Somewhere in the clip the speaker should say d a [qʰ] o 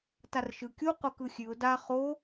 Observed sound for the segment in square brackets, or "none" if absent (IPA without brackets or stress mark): χ